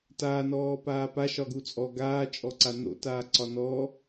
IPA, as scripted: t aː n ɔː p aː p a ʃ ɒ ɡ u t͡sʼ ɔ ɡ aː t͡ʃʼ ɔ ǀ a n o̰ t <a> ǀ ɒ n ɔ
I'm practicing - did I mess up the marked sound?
yes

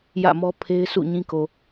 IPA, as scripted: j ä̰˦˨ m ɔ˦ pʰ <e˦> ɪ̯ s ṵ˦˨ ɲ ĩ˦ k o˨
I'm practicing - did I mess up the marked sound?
no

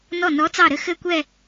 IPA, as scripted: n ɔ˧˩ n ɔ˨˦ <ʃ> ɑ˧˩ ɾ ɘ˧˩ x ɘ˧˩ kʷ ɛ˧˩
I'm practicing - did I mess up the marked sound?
yes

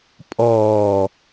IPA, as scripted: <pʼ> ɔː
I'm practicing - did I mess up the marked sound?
no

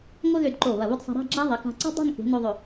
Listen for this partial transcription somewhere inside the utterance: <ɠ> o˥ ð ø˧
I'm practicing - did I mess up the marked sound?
yes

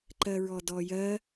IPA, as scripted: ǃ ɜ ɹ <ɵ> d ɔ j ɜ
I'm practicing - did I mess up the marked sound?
yes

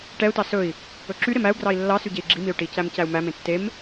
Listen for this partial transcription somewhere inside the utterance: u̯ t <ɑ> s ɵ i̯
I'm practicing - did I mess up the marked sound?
no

